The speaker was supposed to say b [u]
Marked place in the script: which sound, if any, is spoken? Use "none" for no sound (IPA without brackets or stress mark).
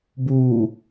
u